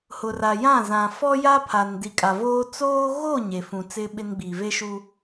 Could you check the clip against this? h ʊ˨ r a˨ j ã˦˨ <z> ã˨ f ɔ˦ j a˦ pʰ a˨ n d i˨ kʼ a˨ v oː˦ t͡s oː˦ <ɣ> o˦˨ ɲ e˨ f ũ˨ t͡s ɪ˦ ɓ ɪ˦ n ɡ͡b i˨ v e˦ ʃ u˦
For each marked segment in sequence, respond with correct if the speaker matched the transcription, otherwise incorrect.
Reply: correct, correct

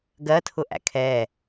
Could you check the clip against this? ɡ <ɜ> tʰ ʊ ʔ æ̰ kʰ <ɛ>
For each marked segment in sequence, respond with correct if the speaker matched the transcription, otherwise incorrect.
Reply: correct, correct

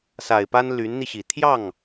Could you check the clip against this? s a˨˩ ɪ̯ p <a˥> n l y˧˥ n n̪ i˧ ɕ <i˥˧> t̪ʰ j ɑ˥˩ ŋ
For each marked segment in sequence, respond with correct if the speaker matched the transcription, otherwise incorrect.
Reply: correct, incorrect: i˨˩

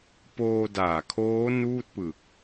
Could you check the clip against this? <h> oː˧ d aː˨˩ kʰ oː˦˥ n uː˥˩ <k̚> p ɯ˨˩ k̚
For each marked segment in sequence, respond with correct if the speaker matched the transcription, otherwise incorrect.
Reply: incorrect: p, incorrect: t̚

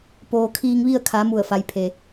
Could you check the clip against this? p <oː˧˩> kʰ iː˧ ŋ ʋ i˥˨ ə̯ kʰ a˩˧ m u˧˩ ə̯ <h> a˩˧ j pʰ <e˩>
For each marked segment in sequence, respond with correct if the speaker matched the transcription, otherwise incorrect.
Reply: incorrect: oː˩, incorrect: f, correct

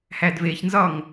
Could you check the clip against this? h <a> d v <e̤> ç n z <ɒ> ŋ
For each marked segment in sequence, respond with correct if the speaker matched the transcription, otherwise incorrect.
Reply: incorrect: æ, incorrect: e, correct

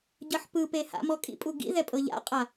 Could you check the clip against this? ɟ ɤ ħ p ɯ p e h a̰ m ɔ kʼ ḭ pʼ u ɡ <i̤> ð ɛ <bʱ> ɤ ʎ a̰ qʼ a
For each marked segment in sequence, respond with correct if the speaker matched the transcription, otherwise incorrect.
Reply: incorrect: ḭ, incorrect: pʼ

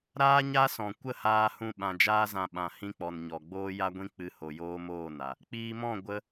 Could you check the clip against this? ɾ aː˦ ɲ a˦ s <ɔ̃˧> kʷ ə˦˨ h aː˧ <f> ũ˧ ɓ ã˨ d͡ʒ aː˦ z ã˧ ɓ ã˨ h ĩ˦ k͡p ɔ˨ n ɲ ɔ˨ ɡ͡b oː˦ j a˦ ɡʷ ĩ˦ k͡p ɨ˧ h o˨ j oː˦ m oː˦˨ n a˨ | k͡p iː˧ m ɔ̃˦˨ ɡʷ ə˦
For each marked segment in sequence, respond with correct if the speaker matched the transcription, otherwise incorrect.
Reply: incorrect: ɔ̃˨, incorrect: h

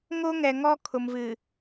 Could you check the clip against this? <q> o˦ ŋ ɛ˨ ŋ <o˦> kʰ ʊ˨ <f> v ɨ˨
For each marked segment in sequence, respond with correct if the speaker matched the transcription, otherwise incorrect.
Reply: incorrect: ŋ, incorrect: ɔ˦, incorrect: m

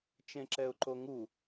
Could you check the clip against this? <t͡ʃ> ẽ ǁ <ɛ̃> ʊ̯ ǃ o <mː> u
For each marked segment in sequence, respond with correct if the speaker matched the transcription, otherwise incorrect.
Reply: correct, incorrect: ɛ, incorrect: ŋ

